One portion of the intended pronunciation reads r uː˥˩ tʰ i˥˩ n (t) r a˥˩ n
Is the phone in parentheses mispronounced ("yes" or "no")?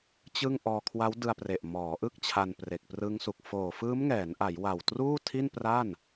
yes